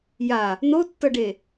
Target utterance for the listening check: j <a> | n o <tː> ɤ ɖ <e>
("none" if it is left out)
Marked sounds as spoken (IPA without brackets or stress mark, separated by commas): a, tː, e